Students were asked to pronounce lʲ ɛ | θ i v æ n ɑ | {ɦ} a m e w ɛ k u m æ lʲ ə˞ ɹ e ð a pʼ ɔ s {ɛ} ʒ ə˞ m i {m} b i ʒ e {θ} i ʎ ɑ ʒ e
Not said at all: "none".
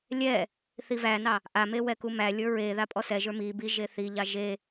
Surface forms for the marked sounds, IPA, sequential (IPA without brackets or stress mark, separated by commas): ʔ, ɛ, none, θ